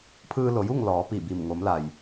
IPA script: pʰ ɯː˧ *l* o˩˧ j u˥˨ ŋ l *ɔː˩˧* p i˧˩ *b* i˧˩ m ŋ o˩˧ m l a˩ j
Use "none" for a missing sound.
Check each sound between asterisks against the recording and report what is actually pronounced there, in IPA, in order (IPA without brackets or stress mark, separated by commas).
l, ɔː˩˧, b